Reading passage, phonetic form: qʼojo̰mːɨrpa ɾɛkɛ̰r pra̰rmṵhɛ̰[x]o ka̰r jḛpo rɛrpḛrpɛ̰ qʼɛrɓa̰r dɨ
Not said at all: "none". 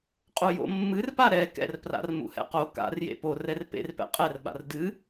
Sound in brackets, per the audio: q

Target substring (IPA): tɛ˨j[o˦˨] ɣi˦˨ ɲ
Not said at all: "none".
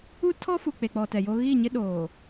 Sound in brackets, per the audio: o˦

